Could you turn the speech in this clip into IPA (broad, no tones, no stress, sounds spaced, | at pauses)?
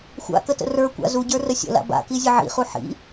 xʷ a̰ k ə t ə̰ r ə˞ kʷ a̰ z u ɟ ə˞ r ə sʲ ə̰ l a̰ b a̰ k i zʲ ə ʕ ḭ χ u ħ ḭ